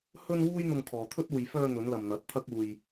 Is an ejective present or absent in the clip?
absent